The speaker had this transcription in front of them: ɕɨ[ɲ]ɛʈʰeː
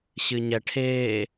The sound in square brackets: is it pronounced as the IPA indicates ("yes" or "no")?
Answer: yes